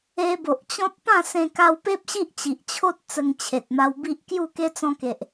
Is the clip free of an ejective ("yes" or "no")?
yes